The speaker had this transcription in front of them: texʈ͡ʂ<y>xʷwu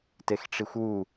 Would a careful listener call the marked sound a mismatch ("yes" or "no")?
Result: yes